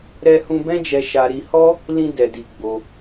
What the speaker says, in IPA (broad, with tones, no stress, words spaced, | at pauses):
ɾɛ˦hũ˦ bɛ̃˦d͡ʒɛ˧ʃa˧ ɾi˧hɔ˦ | lĩ˦dɛ˧di˧ ɡ͡bo˧